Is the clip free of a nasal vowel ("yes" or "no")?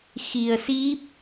yes